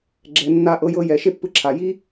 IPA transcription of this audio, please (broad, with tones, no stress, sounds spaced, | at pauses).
ɡ͡ǁ ɛ˧ nː a˦ ʔ ɤ˧ j ɤ˧ j ɛ˨ ʃ e˦ pː ɯ˧ ǁʰ a˨ j i˦